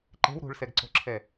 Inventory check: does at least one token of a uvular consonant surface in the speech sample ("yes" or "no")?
no